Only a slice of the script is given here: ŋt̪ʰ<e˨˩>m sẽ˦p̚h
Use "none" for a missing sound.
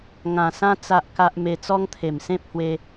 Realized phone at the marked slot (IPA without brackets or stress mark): e˨˩